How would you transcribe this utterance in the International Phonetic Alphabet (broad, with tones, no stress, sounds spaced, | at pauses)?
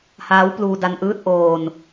h aː˦˥ w p l uː˧ d a˧ n ʔ ɯː˥˩ t̚ ʔ oː˧ n